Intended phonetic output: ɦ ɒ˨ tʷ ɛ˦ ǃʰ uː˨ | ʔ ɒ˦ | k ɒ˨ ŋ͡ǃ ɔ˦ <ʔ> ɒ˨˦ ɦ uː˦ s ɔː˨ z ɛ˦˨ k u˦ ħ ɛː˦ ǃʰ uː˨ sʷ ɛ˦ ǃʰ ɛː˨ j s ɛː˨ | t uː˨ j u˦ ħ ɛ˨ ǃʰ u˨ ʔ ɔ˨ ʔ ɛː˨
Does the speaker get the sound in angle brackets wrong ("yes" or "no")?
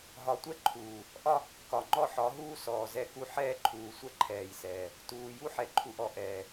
yes